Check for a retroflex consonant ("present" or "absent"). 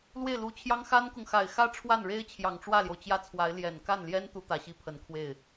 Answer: present